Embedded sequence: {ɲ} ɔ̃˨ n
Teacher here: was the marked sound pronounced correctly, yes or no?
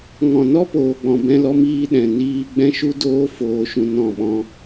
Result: no